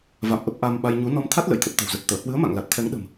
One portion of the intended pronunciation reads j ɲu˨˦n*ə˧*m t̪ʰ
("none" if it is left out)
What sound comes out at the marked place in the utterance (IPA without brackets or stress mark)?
ɔ˧